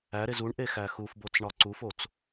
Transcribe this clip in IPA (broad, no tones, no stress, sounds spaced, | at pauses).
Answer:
æ ɾ e z u ɳ ʔ e x æ x u f b o t͡s ɳ ɒ ǀ u f o t͡s